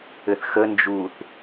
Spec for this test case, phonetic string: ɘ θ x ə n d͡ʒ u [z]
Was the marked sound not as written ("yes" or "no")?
yes